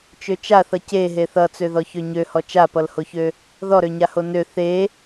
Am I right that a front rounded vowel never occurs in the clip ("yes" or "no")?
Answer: no